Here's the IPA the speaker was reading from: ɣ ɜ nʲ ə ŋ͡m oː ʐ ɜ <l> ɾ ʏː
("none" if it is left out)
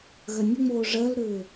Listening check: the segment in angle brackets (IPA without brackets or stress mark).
l